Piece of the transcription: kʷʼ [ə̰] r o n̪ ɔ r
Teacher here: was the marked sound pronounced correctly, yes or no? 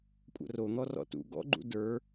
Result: yes